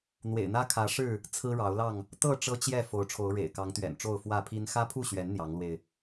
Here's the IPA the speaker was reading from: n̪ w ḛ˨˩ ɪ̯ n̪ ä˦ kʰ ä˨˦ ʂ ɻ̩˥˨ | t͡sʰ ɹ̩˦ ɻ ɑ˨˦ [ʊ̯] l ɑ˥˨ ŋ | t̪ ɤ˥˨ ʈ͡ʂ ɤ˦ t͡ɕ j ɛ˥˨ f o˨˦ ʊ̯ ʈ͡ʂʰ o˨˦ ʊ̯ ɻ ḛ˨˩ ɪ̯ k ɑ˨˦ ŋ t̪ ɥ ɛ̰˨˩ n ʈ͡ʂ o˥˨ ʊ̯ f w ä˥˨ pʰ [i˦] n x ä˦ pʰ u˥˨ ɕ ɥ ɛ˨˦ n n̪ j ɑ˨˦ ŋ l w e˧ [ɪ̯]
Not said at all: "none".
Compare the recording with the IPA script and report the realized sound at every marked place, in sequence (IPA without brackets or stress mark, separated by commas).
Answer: ʊ̯, i˦, ɪ̯